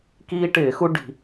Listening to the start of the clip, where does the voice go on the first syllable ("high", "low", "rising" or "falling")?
high